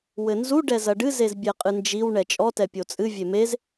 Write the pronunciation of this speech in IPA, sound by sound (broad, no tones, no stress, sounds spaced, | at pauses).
w ɘ n z u ɖ ɛ z ɐ ɖ ɨ z e z bʲ ɛ qʼ ɨ n d͡ʒ i w ɳ ɛ t͡ʃʼ ɔ t ɛ pʲ o t͡sʼ ɨ vʲ e m e z